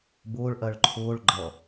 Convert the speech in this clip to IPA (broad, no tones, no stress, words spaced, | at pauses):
bʊːɭʔɜɭ ǃʰʊːɭ ɡ͡ǃʌ